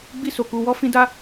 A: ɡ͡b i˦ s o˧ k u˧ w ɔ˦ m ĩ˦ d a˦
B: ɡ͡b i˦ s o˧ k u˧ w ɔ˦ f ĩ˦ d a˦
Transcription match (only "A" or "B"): B